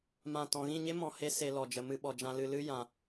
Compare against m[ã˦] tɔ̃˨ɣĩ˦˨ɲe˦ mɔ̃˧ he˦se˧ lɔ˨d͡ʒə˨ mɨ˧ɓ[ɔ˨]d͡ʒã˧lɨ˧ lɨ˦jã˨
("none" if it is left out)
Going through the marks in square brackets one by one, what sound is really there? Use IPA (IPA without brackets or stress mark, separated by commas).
ã˦˨, ɔ˨